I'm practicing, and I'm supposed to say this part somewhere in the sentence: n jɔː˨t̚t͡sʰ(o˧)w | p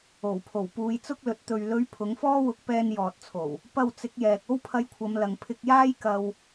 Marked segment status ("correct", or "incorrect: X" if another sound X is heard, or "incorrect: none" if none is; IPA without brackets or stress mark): incorrect: o˨˩